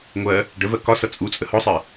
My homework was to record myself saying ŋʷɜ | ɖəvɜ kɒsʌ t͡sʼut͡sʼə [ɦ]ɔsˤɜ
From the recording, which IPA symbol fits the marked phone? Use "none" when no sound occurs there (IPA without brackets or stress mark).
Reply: h